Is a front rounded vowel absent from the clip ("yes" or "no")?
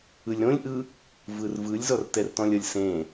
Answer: yes